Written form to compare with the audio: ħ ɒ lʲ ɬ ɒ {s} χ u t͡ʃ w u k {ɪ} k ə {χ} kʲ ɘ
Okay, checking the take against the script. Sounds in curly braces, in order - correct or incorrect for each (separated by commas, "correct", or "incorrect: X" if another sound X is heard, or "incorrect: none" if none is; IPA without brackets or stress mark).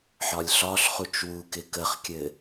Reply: incorrect: ɬ, correct, correct